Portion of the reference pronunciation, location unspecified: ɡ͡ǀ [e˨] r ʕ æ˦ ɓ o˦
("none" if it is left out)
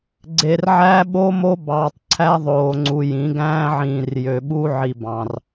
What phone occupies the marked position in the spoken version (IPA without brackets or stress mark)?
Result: e˨